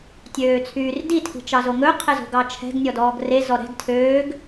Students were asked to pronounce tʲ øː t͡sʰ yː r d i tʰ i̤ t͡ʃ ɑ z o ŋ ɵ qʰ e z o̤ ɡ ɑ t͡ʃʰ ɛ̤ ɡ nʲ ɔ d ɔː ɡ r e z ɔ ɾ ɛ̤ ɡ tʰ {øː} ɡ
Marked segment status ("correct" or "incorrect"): correct